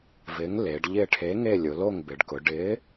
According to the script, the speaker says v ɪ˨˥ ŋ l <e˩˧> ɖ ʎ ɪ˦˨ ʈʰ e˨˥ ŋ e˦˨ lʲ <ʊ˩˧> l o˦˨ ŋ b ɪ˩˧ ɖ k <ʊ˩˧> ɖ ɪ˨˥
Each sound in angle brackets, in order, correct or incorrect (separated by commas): correct, correct, correct